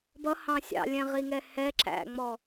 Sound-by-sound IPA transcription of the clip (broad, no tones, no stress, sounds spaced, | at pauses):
b ʌ h ɑ̃ sʲ ɑ̰ lʲ ɛ̃ ʁ i ŋ ɛ h ɛ ǁ æ̰ ŋ͡m ɔ